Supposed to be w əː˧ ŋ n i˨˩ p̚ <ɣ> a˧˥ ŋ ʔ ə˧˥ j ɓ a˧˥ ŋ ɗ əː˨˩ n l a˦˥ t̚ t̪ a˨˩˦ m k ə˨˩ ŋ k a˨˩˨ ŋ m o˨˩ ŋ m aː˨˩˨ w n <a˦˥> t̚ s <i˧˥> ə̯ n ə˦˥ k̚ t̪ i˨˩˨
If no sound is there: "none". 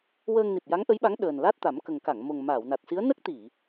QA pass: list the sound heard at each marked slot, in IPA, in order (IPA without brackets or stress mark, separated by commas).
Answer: j, a˨˩, i˧˥